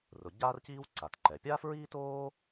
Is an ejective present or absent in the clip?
absent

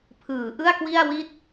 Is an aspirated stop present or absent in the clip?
present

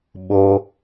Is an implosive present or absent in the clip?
present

